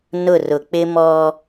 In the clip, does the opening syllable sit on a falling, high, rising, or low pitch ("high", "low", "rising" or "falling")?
falling